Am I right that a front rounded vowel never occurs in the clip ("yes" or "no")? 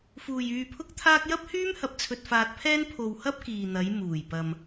no